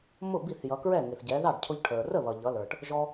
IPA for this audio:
mʊ˥˩bi˥˩θjʌ˩˧kɹɛ˥˩ ŋɪ˩θɟɛ˩˧ðɑ˥˩ɖ cʰʊ˧ʎʈʰə˞˩ rə˥˩βʌ˩ ʎʌ˩˧lə˞˩ʈ | ʒɔ˧

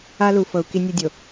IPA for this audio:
a˦lu˨fɤ˨u̯ ki˦nʲo˦dʲo˨

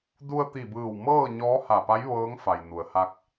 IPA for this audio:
du˧ə̯t̪i˧˩bɯː˧˩w mɤː˥˨ ɲɔː˧˥ha˧˩pa˧˥j ʋɤː˧˥ŋfa˩j nu˩ə̯ha˧k̚

